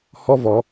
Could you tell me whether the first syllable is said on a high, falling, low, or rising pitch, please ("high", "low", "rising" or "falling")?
high